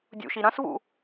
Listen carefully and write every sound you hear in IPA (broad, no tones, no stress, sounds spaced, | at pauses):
dʲ ṵ ʃ i ɾ ɐ̃ s v ṵ